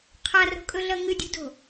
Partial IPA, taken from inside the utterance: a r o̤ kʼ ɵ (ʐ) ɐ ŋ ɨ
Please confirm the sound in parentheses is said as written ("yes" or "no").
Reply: no